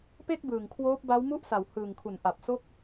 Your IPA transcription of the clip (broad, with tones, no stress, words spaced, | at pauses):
pe˥˩k̚bɯː˨˩ŋ kʰwoː˦˥p̚ba˦˥wmu˥˩ʔ sa˨˩whɯː˨˩ŋkʰu˩˦n ʔa˨˩p̚so˥˩k̚